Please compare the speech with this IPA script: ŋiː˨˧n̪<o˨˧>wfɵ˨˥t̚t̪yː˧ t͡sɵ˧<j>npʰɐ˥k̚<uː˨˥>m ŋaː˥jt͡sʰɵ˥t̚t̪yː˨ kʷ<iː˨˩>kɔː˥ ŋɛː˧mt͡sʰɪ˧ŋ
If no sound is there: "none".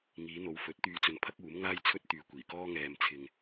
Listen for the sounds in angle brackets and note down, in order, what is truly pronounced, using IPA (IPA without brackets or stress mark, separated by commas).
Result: o˨˧, none, uː˨˥, iː˨˩